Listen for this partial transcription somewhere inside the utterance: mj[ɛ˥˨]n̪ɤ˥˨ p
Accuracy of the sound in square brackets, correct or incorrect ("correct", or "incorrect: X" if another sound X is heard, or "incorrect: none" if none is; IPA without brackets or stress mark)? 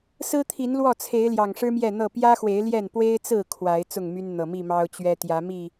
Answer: correct